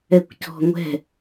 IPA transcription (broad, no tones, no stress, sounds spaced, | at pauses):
ɛ kʷ c ɔ̤ ŋʷ ɛ̤